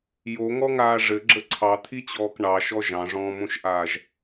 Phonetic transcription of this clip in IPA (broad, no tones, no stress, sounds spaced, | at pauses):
j o ŋ ɔ ŋ aː ʐ ɘ ɡ͡ǁ ə ǀʰ ɑ t̪ʰ i t͡ɕ ɔː k ɳ ɑ ʃ ɔ ʒ ɑ̃ ʐ ɔ̃ː m õ ʃ ʔ aː ʒ